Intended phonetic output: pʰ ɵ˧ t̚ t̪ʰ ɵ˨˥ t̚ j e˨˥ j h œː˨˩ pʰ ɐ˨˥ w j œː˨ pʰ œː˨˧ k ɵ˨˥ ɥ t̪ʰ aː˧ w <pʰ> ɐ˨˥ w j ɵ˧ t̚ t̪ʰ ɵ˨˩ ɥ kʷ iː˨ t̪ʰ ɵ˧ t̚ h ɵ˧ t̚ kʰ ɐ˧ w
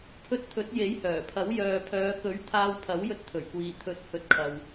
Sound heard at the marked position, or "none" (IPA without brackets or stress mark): pʰ